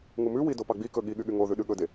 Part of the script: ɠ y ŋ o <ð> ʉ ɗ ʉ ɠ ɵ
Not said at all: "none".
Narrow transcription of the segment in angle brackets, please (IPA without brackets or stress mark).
ð